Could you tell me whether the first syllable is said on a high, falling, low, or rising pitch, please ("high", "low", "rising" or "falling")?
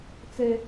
high